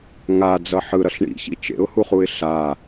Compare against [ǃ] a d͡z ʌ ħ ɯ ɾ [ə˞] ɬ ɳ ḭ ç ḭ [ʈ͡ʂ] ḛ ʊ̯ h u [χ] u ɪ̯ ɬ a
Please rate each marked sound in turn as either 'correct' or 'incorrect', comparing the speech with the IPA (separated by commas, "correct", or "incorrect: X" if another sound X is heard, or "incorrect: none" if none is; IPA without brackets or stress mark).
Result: incorrect: ŋ, incorrect: ʌ, incorrect: t͡ʃ, correct